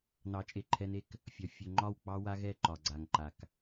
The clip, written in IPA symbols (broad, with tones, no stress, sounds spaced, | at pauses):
n ɑ˨˦ t͡ʃʼ e˨ ǃʰ ɛ˦ n e˦ k | fʲ ɒ˨ fʲ ɵ˨ ŋ͡ǃ ɒ˦˨ w k͡p ɑ˦ w a˦ ɣ ɛ˦˨ ǃ ɒ˨ ɡ͡ǀ a˨ ŋ ǃ a˨ k